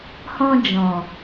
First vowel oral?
no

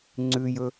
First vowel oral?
yes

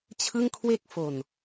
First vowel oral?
yes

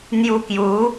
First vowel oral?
yes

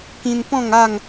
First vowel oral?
no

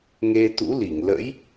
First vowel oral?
yes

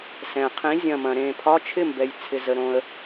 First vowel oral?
no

